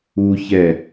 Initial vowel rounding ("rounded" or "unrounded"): rounded